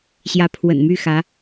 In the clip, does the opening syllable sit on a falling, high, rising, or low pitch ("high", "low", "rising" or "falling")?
rising